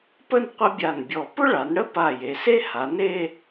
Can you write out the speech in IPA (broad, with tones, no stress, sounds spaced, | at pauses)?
p ə˥˧ n qʷ ə˥ bʲ a˧˩ n bʲ ɔ˧˩ p ʊ˥ ɭ a˩˧ n ɽ ə˥ p a˧˩ j e˩˧ s e˥ h a˩˧ n e˥˧